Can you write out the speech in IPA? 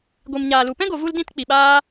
ɡʷ i˨ m ɲ aː˨ l u˨ p ɛ̃˦ ɡ o˨ v u˧ l d ĩ˧ t k͡p i˨ ɓ aː˦

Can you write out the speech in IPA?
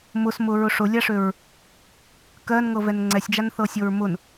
m ʊ s m ʊ ɹ ʊ ʂ ʊ lʲ a ʂ ø ɹ | k ɜ n ŋ ɤ v ɛ n ŋ͡ǀ ɛ sʲ d͡ʒ a n θ ɤ sʲ ɤ ɹ m ʊ n

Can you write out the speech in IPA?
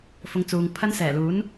f ʊ˨˧ ŋ t͡s uː˨ ŋ pʰ ɐ˥ n s ɛː˨˩ l uː˨˥ n

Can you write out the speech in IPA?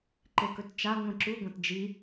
ǃ e k ɵ t t͡ʃ a ŋʷ ĩ ǁ u ɡʷ ɐ̃ t d͡ʒ i

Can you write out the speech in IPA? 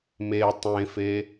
m e tˤ ẽ f e

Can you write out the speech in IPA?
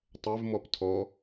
tˤ ɛ v m ɔ p tʰ ɔ

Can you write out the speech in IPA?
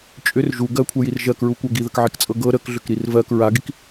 t͡ʃʼ ʏ r ʒ u ɡ ɜ kʷʰ ɛ j i r ʒ ɜ k ɹ u kʷ ɜ ɡ i ð ə k ʕ i k t͡sʼ ɤ ɡ ɤ ɾ ə k ɮ ʏ k ɾ i r v ɜ k ɹ a ɡ i k

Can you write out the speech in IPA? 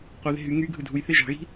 qʷ ɯ ð e̤ ɦ y ŋ y ɡʱ ɯ dʱ u j θ e ʒ ɑ̤ ɣ i̤

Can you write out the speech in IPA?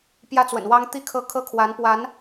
p j ä˥ t͡s w ə̰˨˩ n w ɑ˥ ŋ t̪ i˥ kʰ ɤ˥˩ kʰ ɤ˥ kʰ w a˧˥ n p w a˧˥ n

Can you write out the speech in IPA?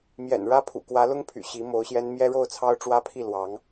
m j ɛ̰˨˩ n ɻ ä˥ pʰ ṵ˨˩ k w ä˧˥ l ʊ˥ ŋ pʰ y̰˨˩ ɕ i˧˥ m o˧˥ ʊ̯ ɕ j ɛ˥ n m j ɛ˥ ɻ o˥˩ ʊ̯ t͡sʰ ɑ˥ ʊ̯ ʈ͡ʂ w ä˥ pʰ i˥˩ l w ɑ˧˥ ŋ

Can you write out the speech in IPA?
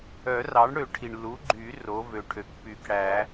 œ˨˩˦ r ɑ˩˥ ɳ ɽ ø˨˩˦ ʈʰ i˩ ɳ l u˩˥ ɡ͡ǃ y˨˩˦ r o˩˥ v ø˩ ʈʰ ø˩˥ k p y˨˩˦ k ɽ æ˨˩˦

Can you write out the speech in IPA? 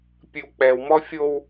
pʲ ɨ w k͡p ɛ w m ɔ fʲ o w

